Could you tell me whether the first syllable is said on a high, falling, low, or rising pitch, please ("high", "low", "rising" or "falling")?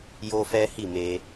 high